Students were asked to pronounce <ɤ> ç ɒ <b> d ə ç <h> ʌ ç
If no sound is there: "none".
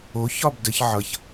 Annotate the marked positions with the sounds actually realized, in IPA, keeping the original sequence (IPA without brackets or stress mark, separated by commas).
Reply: o, b, ʕ